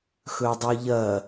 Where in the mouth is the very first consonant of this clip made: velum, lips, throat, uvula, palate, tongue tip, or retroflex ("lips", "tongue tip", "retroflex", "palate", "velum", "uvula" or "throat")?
velum